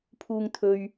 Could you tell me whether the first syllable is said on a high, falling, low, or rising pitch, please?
low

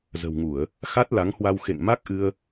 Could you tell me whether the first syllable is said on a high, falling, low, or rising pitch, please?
low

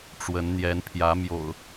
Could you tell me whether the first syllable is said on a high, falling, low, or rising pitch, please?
rising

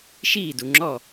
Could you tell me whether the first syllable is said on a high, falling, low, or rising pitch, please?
falling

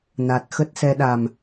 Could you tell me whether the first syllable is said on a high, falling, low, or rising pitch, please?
low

